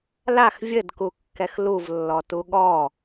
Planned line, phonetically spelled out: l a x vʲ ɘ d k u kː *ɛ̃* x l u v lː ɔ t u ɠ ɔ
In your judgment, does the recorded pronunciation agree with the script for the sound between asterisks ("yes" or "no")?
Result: no